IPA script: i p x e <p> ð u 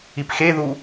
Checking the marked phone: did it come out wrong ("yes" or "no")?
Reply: yes